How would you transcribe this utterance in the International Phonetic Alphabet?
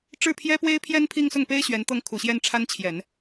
ʈ͡ʂ ɻ̩˥˩ pʰ j ɛ˥ p w e˥ ɪ̯ pʰ j ɛ˥ n pʰ i˥˧ ŋ s ʊ˥˩ ŋ p e˥ ɪ̯ ɕ ɥ ɛ˧˥ n t̪ ɤ˥ ŋ kʰ u˨˩ ɕ j ɛ˥˩ n ʈ͡ʂʰ a˥ n t͡ɕʰ j ɛ˨˩˦ n

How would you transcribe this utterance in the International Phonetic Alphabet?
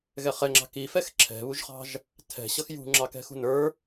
ɣ ɛ χ ɛ ŋ͡ǁ ɑ̤ k i f ɛ x ǁʰ ɛ̤ β u ʒ χ ɑ̤ ʒ | tʰ ɛ̤ ɕ ʌ x j ṳ ŋ͡ǁ ɑ k ɛ̤ x ṳ n ə˞

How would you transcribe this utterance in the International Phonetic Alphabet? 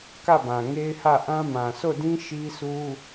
k ä˦˨ b ã˨ ŋ e˦ ɪ̯ h ä˦˨ ʔ ã˦ m ã˨ sʰ o˦˨ d ĩ˦ ʃ i˦ s u˦

